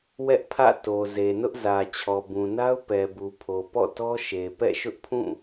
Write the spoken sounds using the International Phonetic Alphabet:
wɛ˦ʔpʰä̰˦˨ to˨ ze˨nʊ˦ʔzä˨ t͡ɕʰɔ˨bũ˨na˦ʊ̯ pɛ˨bu˨pʰo˨ pɔ̰˦˨tɔ˦ʃe˨ pɛ̰˦˨ʃʊ˦ʔpʰũ˦˨

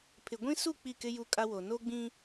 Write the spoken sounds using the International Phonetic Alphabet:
pʰɪ˨ɡʷĩ˦su˦˨ k͡pi˦˨kɪ˦ ju˦kʼa˦wo˨ no˦ɡ͡bĩ˦

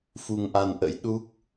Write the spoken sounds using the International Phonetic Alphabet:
fu˧ŋʔa˧nʔə̰˧˥j ɗu˦˥k̚

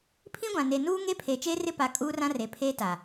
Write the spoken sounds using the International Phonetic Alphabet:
pʰĩ˦ɡʷã˨ ne˨ nuː˦ŋe˦ pʰeː˨t͡ʃeː˦rɪ˦pa˨˦ kʼuː˦rã˦re˨pʰeː˦ ta˨

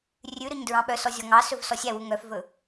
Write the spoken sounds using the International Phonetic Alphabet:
rʲʉɾɵɲ dɹɑ̃ɓœsɔ zʲɔŋɑsɵv sɔsʲæwu ŋœfvɵ

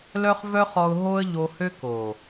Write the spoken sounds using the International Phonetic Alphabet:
lœ˦χvœ˦χɔ˧ʊ̯ ɦo˦ə̯ʎo˧hø˦ ko˨

